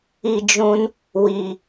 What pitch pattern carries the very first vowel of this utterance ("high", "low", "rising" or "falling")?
high